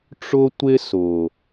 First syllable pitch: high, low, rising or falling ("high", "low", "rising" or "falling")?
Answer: high